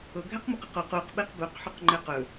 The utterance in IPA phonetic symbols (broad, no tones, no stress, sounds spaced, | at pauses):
ɤ ɡʱ ɛ q m o q ɤ q o q u q ɓ e q b ɵ q ħ u q ŋ͡ǃ ɛ q ɵ